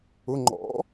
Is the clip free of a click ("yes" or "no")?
no